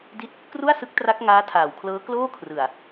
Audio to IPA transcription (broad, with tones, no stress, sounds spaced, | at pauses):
d i˥˩ t̚ | k r u˥˩ a̯ s ɯ˦˥ k̚ t r a˦˥ k̚ ŋ aː˦˥ tʰ aː˨˩ w kʰ l ɤː˦˥ k l oː˥˩ kʰ r ɯ˨˩ a̯